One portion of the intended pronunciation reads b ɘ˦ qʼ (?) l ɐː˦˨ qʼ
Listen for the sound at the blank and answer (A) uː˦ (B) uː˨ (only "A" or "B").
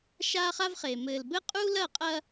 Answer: A